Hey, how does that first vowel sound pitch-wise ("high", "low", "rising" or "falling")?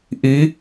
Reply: rising